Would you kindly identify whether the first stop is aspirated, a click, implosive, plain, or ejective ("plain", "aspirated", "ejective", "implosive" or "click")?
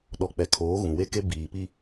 implosive